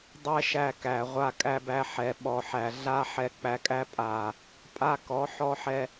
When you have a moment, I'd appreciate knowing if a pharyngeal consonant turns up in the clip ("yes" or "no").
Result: yes